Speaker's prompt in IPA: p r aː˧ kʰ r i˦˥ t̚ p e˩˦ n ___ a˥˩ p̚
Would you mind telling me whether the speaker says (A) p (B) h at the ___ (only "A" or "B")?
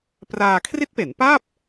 A